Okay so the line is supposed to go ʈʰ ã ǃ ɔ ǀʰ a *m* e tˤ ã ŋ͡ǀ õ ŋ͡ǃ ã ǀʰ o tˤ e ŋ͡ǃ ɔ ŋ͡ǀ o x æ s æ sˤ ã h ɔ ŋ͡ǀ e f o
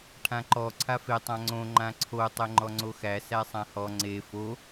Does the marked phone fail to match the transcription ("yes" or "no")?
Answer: yes